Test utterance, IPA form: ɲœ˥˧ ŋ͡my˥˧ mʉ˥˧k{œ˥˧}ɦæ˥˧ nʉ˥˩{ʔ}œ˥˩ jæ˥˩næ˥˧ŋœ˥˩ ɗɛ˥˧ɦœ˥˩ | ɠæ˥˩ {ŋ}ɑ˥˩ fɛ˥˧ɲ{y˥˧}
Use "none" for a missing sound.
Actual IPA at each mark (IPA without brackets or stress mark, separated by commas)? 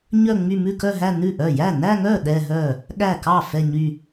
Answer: œ˥˧, ʔ, k, y˥˧